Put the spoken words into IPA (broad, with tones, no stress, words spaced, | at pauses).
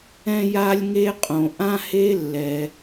ɛ̃˥ja˥lʲŋe˥qʼõ˩ ʔã˥he˥lːɛ˩